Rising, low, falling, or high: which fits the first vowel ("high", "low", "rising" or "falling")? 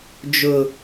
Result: low